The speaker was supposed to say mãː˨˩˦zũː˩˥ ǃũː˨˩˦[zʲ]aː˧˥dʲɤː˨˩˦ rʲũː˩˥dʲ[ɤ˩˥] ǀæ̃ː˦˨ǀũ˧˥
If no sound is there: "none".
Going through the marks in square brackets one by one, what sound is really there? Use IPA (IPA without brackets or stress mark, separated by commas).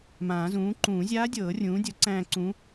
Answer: zʲ, ɤ˩˥